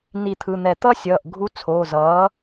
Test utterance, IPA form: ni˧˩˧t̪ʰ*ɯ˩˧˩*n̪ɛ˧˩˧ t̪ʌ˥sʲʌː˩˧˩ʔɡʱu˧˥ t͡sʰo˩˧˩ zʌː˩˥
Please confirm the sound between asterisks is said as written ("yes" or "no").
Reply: yes